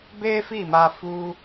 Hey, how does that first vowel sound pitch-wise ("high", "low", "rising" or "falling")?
high